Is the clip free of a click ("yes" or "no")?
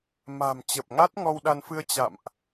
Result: yes